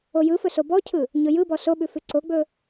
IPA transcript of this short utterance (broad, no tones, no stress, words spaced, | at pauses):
ojɯfɵ sobɔcʰɯ | ɲɵjɯbɔ soɓʉfʉ ǀoɡ͡bɵ